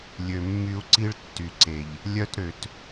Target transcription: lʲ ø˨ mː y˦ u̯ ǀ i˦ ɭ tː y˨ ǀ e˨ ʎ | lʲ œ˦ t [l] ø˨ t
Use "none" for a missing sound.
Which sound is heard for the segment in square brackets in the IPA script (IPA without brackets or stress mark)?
ɾ